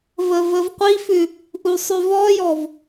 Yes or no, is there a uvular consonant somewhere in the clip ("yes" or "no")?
yes